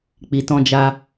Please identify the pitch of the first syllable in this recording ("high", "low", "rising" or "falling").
low